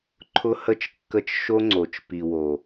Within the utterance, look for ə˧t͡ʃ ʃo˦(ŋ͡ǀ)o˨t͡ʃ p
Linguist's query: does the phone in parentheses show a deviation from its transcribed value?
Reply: no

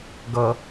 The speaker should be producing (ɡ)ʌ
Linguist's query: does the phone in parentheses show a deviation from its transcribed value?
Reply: no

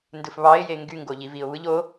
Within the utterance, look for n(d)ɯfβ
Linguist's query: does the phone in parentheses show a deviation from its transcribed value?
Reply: no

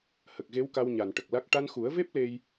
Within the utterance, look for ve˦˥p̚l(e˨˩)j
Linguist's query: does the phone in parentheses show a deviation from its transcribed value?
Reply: yes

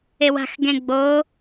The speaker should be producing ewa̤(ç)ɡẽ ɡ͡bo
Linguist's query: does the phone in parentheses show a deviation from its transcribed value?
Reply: yes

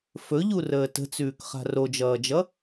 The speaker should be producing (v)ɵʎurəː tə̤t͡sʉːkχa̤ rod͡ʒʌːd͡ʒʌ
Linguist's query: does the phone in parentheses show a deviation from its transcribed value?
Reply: yes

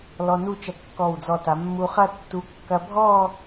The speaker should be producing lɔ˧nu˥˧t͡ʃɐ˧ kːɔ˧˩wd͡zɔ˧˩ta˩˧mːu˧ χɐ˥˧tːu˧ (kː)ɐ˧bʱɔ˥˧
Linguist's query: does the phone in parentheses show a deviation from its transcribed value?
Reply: no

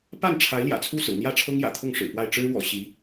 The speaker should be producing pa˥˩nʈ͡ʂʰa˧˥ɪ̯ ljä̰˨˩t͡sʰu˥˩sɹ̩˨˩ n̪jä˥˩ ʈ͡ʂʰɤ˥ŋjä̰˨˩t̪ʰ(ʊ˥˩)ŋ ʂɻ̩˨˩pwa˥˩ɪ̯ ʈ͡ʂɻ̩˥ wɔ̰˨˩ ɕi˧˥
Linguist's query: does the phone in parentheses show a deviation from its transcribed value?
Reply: no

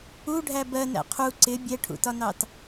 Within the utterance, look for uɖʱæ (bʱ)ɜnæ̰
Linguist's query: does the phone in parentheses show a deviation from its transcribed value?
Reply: yes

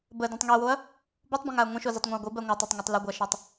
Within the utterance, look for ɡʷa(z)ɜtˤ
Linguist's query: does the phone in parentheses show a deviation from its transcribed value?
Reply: yes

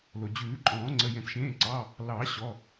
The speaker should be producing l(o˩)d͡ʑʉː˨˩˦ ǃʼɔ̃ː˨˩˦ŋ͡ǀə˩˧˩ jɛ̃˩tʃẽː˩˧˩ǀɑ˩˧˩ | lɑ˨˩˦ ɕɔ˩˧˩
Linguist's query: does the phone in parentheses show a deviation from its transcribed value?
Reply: no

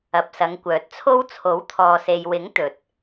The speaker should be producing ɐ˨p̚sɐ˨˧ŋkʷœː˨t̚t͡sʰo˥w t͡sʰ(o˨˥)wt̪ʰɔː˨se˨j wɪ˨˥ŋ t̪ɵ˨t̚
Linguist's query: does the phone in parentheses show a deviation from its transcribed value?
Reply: no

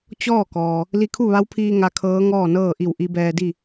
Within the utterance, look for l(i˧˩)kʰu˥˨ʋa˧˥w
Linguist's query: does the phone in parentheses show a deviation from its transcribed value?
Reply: yes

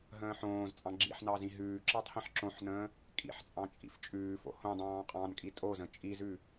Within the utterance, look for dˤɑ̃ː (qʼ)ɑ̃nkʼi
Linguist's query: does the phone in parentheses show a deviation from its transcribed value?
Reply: no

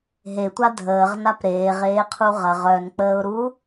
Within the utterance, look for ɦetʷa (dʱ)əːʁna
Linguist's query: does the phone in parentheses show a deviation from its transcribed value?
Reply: no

